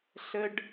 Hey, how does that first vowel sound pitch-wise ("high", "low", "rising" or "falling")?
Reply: high